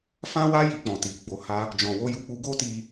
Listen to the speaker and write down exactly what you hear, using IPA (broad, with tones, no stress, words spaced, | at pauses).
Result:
fã˦wa˦ ji˧k͡pɔ̃˨ti˨ ɡ͡bo˨ha˧ | d͡ʒɔ̃˨wo˧ju˧k͡pu˧ ɡo˦ti˧